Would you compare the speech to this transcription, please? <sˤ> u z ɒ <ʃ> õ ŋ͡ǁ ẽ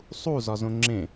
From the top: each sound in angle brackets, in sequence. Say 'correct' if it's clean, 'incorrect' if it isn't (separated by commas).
correct, incorrect